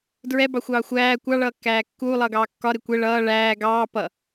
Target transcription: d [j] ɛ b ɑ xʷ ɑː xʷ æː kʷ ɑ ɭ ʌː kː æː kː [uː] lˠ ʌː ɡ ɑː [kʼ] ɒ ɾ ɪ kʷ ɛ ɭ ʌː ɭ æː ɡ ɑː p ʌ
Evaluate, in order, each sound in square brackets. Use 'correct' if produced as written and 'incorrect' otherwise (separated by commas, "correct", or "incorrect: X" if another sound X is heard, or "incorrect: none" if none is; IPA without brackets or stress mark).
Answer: incorrect: ɹ, correct, incorrect: kː